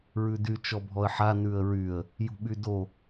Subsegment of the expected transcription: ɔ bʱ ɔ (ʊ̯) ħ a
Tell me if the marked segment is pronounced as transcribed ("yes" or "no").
no